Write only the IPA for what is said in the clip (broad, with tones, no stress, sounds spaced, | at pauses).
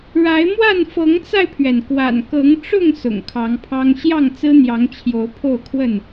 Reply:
ɻ a˨˦ ɪ̯ m w a˥˨ n f ɤ˨˦ ŋ t͡s a˧ ɪ̯ pʰ ɥ ɛ˩ n k w a̰˨˩ n k ɤ˨˦ ŋ ʈ͡ʂ ʊ˥˨ ŋ s ʊ̰˨˩ ŋ kʰ ɑ˨˦ ŋ pʰ ɑ˦ ŋ ɕ j ɑ˥˨ ŋ t͡s ɹ̩˦ n̪ j ɑ˨˦ ŋ t͡ɕʰ j o˨˦ ʊ̯ pʰ o˥˨ ʊ̯ kʰ w ə˥˨ n